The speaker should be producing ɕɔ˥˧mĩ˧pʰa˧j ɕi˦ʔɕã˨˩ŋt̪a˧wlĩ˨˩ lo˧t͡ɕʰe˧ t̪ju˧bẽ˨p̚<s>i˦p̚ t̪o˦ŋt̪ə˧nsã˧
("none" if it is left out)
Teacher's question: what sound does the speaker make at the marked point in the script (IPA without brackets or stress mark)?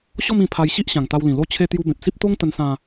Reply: s